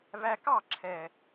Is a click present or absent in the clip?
present